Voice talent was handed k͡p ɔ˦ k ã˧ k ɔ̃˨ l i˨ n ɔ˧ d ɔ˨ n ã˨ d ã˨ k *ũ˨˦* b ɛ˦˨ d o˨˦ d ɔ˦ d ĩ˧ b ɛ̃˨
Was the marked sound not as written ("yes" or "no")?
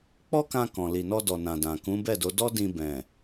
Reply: no